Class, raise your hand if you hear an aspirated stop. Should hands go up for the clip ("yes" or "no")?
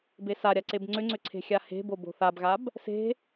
yes